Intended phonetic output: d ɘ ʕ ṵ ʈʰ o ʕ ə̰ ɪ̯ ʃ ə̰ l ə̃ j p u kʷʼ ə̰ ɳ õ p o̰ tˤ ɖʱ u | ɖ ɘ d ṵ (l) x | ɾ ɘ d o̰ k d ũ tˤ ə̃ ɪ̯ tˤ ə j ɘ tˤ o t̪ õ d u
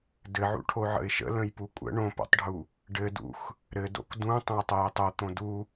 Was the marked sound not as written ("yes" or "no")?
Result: yes